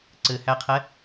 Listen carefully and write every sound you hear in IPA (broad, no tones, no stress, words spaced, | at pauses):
ǀɘhæqʰɛ